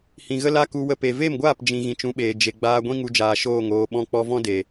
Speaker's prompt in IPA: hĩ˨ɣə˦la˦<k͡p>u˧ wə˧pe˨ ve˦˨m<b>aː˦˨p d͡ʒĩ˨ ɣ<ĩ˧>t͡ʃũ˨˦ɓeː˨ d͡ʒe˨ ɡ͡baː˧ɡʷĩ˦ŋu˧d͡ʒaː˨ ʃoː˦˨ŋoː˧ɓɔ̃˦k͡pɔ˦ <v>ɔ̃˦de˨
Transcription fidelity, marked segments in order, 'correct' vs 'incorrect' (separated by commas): incorrect, incorrect, incorrect, correct